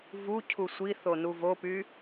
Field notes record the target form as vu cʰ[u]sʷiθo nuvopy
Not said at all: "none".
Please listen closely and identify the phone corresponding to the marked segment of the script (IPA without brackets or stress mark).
u